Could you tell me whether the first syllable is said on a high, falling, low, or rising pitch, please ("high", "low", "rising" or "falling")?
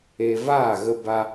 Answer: high